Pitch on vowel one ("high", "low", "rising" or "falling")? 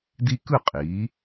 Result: high